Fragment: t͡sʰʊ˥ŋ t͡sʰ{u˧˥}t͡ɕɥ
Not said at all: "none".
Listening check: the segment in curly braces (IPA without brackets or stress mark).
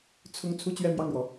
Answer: u˥